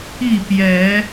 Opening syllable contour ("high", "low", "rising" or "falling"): falling